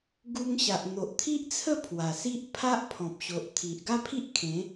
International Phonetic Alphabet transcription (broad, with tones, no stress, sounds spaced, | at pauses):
ɡ u˧ ŋ ɕ a˨ ʔ n̪ o˨ ʔ t̪ʰ i˦ ʔ t͡sʰ ə˥˧ pʰ w a˨˩ s i˦ ʔ pʰ a˦ ʔ pʰ ɔ̃˨ p̚ ɕ o˨ ʔ t̪ʰ i˨ ʔ ɡ a˦ pʰ i˦ ʔ kʰ ẽ˨˦